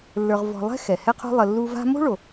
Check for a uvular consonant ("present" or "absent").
present